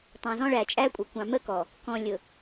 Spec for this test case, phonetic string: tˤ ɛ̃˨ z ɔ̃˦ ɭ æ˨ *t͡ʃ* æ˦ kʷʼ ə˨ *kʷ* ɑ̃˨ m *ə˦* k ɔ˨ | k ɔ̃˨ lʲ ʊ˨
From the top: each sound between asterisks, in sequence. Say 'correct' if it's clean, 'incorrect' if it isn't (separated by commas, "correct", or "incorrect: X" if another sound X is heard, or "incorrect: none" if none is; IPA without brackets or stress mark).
incorrect: t͡ʃʼ, correct, correct